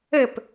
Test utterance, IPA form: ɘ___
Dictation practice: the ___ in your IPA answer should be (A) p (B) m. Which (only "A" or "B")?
A